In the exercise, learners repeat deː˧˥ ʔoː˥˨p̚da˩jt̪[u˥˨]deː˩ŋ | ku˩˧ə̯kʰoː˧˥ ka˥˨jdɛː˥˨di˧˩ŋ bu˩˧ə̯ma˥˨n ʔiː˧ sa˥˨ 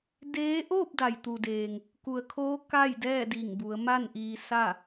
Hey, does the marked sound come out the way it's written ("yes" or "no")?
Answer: no